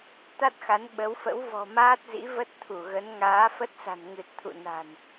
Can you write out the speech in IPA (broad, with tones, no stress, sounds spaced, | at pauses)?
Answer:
t̪ a˦˥ t̚ x a˨˦ n ɓ ə˨˦ w f ə̰˧˥ w v ɔ̤˨˩ m aː˦˥ t̚ z ḭ˧˥ v ə˦˥ t̚ t̪ʰ u˧˩ ɣ ə˨˦ n ŋ aː˨˦ f ə˦˥ t̚ s a̤˨˩ n ŋ ɨ˨˩ t̚ t̪ʰ ṵ˧˨ n a̤˨˩ n